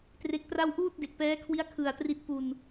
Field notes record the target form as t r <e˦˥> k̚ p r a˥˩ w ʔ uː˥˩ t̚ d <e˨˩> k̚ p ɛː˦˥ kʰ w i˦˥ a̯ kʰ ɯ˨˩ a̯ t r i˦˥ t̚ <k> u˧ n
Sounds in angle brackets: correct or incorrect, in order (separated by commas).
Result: correct, correct, incorrect